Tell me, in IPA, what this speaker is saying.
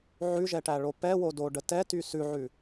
ʕ ʉ ʒ ɛ ʈ æ ɭ o p ɛ w o d o ɖ ə t ɛ t y s ʉ ʕ ʉ

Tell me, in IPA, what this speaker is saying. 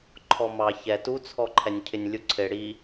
ǃʰ ɔ m ɑ ç ɛ t u t͡sʰ ɔ ǃʰ ɛ nʲ cʰ ɪ nʲ lʲ u ǀʰ ɪ ɽ i

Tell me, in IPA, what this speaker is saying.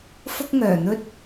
f ʊ˥ k̚ ŋ œː˨˩ n̪ ɵ˥ t̚

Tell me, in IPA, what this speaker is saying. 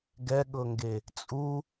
ɡ ɛ ɠ ɤ ŋ ɡ e | t͡sʼ u

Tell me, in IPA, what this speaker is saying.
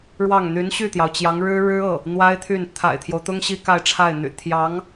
ɻ w ɑ˥˩ ŋ n̪ y˧˥ n ɕ y˥˩ t̪ j ɑ˩ ʊ̯ t͡ɕ j ɑ˧˥ ŋ ɻ ɻ̩˥ ɻ ɻ̩˥ ɤ˥˩ | n̪ w a˥ ɪ̯ t̪ʰ y˥˩ n t̪ʰ a̰˨˩ ɪ̯ t̪ʰ j o˦ ʊ̯ t̪ ʊ˥ ŋ ɕ i˥ k a˥˧ ɪ̯ ʈ͡ʂʰ a˥˩ ɪ̯ n̪ y̰˨˩ t̪ʰ j ɑ˧˥ ŋ

